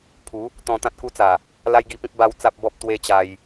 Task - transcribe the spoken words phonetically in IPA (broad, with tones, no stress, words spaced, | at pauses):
pʰu˨˦ | t̪ɔ̃˧t̪ã˦t̚ku˦t͡sa˨˩ | la˦jɡi˧pĩ˦p̚ ba˧w t͡sa˦p̚bɔ˦p̚ t̪we˦t͡ɕa˧j